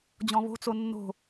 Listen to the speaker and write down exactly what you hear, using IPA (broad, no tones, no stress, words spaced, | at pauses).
d͡ʑɔ̃βo̤t͡so nːo̤